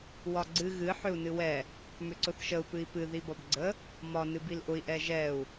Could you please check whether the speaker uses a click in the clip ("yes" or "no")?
yes